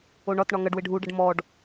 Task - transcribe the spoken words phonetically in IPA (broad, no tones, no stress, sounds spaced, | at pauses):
o ɳ ɒ t ɳ ɒ ŋ ɐ ɖ w ɪ ɖʱ u ɖ ɐ ɖ m ɔ ɖ